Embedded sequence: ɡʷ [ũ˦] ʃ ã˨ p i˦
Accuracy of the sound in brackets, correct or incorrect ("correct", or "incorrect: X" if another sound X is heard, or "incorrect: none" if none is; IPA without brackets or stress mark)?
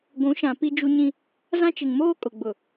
incorrect: ũ˨˦